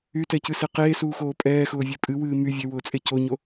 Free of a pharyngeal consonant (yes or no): yes